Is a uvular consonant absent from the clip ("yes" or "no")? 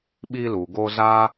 yes